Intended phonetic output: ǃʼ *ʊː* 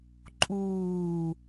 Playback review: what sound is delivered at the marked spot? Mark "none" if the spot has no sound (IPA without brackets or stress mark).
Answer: uː